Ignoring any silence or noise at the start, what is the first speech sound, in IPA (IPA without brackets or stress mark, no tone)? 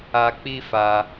a